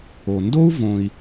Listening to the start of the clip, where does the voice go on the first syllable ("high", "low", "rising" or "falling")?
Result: low